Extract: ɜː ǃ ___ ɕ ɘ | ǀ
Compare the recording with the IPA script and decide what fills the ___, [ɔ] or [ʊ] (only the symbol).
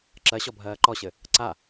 ɔ